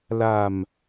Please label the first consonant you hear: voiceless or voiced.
voiced